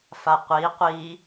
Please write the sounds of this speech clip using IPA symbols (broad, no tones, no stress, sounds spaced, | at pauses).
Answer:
f a qʷ i qʷ i